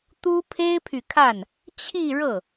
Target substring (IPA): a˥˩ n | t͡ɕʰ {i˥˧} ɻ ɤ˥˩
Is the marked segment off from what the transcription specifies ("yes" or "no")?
no